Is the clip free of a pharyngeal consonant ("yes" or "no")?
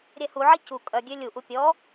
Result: no